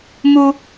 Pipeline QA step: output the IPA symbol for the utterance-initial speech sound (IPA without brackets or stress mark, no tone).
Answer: m